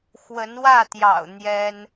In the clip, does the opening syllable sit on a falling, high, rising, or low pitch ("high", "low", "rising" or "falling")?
rising